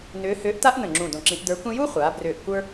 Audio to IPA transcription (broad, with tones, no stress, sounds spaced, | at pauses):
n ʏː˧˥ h ʏː˧˥ ʔ t a˥ ʔ n ə̃˧˩ ŋ͡ǁ ũ˧˩ d õ˧˩ ǁ ĩ˧˥ ʔ d ə˞˧˥ kʷ ĩ˥ j u˥ χʷ aː˩˧ b r ʏː˧˩ ʔ kʷ ə˞˥